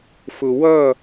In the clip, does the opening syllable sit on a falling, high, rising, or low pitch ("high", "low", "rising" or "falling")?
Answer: low